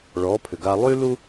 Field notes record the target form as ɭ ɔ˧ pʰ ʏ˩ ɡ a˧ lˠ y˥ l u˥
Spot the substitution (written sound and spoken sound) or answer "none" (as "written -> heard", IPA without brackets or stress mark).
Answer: ɔ˧ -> ɔ˩˥